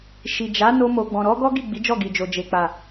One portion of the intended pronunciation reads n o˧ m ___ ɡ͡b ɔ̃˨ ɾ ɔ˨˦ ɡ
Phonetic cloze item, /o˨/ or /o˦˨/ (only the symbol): o˨